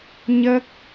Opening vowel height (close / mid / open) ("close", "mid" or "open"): mid